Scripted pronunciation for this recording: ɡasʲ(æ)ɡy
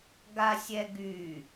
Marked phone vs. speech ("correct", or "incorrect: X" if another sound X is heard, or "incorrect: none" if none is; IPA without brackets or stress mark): incorrect: ɛ